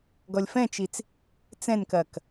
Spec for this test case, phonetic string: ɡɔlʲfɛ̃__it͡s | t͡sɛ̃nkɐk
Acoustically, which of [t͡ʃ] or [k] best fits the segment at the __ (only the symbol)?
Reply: t͡ʃ